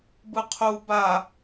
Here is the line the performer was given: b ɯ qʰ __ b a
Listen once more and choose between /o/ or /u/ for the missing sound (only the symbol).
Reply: u